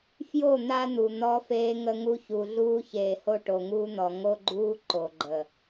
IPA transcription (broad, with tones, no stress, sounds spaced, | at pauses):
f j o˦˨ n̪ a˦ n̪ u˨ n̪ ɔ˦ f eː˦ ŋ ə˦ ŋ u˦ ç u˨ ɮ uː˦ ç eː˨ h o˦ ʈ o˨ ŋ uː˦ n̪ ɔ˨ ŋ o˦ ɡ͡ǃ uː˦ ǃ o˨ ɡ͡ǃ ə˨